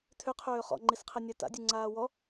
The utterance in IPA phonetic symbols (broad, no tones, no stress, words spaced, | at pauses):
tʰʏqʰøː χɔ̰ŋ͡ǃisqʰɛ nʲata̰dʲʉ ŋ͡ǀaːwɔ